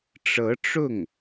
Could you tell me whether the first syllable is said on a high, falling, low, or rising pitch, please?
rising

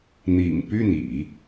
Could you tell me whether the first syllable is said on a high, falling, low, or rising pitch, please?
low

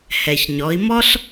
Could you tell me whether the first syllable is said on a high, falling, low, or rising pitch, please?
low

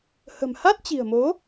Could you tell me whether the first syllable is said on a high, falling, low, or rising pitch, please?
low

